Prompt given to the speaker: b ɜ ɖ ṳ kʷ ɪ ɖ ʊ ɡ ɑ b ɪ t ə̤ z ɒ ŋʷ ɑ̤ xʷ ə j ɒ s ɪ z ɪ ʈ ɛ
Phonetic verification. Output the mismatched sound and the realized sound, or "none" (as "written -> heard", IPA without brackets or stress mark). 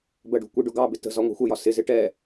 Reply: none